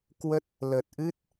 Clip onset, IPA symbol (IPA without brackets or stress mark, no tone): k